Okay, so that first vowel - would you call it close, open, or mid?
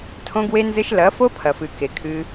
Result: mid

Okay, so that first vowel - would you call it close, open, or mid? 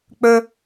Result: mid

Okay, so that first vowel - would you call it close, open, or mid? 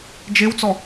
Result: mid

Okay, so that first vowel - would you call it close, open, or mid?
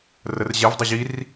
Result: mid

